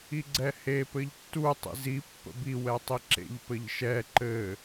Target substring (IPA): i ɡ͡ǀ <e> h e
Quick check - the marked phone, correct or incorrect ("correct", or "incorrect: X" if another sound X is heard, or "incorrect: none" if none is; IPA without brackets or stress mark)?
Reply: incorrect: ɛ